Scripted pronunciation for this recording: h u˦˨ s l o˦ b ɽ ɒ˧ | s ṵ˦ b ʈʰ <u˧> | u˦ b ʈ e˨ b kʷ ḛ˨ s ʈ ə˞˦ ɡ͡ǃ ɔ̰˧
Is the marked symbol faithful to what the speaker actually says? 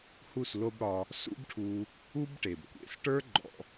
yes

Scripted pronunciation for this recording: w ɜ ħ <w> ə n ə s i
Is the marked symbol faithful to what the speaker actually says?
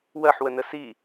yes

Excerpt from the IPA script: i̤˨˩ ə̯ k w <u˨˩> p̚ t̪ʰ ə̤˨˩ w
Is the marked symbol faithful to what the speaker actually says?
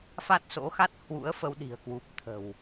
yes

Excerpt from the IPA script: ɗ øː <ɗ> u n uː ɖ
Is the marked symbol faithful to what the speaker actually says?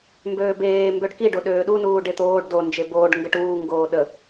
yes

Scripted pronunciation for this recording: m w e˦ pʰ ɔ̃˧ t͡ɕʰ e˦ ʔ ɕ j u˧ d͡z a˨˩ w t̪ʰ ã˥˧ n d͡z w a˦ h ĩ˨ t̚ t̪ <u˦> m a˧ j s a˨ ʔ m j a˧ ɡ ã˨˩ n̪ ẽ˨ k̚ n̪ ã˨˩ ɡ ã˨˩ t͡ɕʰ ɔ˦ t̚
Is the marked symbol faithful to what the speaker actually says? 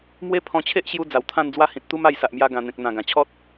yes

